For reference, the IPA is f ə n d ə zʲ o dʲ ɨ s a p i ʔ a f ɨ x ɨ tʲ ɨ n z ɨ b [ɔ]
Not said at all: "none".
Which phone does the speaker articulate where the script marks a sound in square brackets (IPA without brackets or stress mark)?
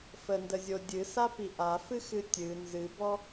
ɔ